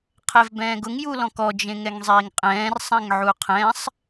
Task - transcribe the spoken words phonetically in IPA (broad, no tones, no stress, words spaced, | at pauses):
qʰɛvbɛ̃ːɡʊŋ julɔ̃kɔ d͡ʒẽŋɛŋzˤiːŋqʼɛ̃ːr sˤɛ̃ŋʕuqʰɛ̃sˤ